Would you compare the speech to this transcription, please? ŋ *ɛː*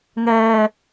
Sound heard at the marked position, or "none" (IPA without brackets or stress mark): ɛː